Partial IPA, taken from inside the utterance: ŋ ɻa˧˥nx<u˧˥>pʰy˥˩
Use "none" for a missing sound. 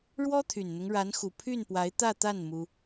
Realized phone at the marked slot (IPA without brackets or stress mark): u˨˩